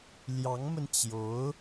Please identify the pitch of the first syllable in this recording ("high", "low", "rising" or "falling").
rising